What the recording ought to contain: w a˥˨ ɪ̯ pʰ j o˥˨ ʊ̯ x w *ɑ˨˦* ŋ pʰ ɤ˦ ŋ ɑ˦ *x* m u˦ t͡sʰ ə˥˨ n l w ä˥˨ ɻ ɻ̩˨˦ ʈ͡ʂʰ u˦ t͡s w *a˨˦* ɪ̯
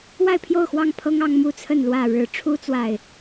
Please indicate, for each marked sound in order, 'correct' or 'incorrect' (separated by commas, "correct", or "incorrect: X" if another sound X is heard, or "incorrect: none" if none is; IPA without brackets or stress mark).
incorrect: ɑ˥˨, incorrect: ŋ, incorrect: a˨